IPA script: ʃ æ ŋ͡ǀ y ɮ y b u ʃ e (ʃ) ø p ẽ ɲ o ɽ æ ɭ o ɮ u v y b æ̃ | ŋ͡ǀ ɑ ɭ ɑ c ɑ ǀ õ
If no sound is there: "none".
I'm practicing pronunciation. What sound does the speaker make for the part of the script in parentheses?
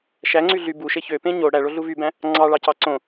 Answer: ç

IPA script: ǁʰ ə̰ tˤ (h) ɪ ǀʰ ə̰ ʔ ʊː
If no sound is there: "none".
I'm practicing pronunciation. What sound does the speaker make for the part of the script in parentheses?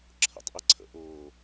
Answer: ʔ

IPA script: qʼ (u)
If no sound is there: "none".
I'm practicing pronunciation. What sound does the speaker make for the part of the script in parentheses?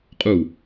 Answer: u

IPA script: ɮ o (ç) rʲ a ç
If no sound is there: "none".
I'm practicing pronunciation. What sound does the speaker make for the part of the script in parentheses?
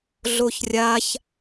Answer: ç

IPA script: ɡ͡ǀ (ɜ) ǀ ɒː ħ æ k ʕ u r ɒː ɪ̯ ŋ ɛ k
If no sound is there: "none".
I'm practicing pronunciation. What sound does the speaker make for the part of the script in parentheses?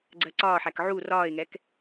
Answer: ɜ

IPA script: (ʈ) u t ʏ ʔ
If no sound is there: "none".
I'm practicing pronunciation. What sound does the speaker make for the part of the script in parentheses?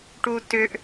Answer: ʈ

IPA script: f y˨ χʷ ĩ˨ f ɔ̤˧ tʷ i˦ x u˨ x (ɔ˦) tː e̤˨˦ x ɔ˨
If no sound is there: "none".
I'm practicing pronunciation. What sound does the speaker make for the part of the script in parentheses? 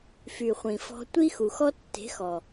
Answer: ɔ˦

